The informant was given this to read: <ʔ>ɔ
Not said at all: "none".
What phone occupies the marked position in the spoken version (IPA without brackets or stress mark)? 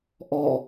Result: ʔ